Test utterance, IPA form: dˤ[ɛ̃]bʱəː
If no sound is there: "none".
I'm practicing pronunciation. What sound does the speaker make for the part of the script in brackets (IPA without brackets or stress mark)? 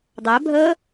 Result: ɛ